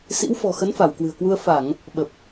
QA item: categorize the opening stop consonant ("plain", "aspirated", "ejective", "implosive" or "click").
plain